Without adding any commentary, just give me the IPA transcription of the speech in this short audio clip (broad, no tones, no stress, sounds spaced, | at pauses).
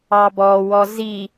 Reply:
ɑ b ɔ w ɔ z i